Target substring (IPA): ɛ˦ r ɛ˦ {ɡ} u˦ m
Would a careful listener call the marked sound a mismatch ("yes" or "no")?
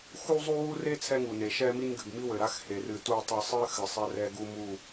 no